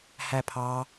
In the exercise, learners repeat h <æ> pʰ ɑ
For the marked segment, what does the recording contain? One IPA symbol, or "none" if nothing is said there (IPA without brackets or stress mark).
æ